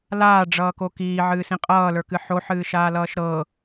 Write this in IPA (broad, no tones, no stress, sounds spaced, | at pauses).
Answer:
l aː ɖ͡ʐ ʌː k o k iː ʕ ɨː s ĩ qʼ ʌː l ə˞ k ɨ ħ o ħ ɨː ʃ aː l ʌː ʃ ɾ ɤ